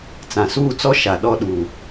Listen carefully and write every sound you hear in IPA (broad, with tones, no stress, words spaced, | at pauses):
t͡sã˨suː˦˨t͡sɔ˦ ʃa˨ ɗɔ˦ ɗuː˨